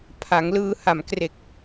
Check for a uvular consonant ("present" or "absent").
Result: absent